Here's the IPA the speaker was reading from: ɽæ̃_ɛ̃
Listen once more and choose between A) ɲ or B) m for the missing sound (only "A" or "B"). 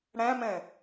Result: B